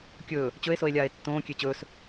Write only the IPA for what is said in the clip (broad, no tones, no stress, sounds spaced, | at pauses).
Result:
kʲ ɵː | t͡ɕ ɵ e̯ s o e̯ lʲ aː e̯ tː õː kʲ e t͡ɕ ɵː s